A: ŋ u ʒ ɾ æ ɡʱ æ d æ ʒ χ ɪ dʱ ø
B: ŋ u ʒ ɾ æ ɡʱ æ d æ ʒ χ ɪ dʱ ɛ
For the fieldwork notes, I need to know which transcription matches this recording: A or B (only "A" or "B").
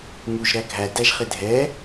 B